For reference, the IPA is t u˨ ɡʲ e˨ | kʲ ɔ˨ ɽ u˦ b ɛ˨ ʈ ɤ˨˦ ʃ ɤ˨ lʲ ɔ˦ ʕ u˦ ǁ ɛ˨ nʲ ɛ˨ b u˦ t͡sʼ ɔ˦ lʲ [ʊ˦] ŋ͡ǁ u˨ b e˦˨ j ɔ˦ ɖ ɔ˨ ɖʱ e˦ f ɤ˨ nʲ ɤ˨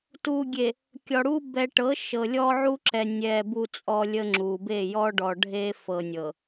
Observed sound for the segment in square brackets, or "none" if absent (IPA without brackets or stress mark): ə˦